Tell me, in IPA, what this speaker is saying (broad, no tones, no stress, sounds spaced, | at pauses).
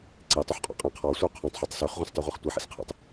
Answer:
ǀ e tˤ ø ħ qʼ ɔ̰ qʼ ẽ qʰ ɔ sʷ œ qʰ œ̃ tˤ ħ i tˤ s ø χ ʁʷ ẽ s tˤ y ʁʷ i χ tʷ e ħ ḭ s qʰ ḛ tˤ